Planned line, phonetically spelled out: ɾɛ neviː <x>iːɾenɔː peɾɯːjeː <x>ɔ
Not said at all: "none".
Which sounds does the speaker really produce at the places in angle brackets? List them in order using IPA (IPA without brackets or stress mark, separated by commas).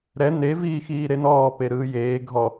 x, ɡʱ